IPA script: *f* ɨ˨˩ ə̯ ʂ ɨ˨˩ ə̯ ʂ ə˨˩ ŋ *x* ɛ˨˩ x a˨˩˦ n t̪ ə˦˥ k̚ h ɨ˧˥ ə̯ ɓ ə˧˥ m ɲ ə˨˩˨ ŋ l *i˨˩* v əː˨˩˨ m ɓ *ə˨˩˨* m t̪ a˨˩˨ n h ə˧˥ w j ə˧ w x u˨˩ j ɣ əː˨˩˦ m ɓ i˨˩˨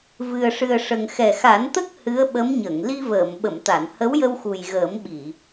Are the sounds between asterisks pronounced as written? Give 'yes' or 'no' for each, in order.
no, yes, no, yes

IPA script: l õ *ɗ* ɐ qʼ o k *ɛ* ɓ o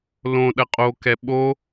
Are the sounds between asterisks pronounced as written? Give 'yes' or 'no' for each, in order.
yes, yes

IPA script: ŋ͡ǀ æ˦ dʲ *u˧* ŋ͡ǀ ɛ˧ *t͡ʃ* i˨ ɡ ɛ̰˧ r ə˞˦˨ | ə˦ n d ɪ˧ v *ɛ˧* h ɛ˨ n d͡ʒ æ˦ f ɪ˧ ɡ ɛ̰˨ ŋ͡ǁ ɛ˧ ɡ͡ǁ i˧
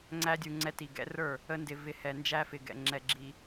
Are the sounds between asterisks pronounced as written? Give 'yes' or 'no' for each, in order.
yes, no, no

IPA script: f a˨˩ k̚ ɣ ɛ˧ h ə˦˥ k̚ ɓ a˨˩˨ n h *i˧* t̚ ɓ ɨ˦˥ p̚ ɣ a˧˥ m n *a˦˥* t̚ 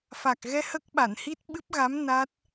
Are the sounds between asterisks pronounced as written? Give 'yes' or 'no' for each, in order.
no, yes

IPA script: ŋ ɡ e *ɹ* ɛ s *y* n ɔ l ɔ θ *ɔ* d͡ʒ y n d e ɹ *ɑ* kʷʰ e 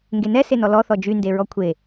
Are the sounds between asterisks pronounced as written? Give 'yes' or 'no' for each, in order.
no, no, yes, no

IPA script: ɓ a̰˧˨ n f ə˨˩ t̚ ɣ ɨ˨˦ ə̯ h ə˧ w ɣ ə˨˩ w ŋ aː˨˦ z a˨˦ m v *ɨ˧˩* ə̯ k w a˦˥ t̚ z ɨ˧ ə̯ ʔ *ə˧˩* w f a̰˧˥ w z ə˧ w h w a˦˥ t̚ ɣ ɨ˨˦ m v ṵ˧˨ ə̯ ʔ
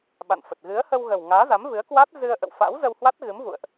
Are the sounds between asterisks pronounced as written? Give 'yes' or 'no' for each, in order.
no, no

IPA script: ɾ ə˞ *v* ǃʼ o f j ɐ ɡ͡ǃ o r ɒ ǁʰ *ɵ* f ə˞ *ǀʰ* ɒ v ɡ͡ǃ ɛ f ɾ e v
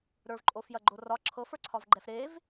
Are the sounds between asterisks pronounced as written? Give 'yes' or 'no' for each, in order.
yes, no, yes

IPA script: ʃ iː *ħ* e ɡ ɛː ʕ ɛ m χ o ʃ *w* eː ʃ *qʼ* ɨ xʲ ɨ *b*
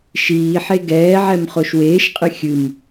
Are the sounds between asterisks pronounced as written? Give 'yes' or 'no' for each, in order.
yes, yes, yes, no

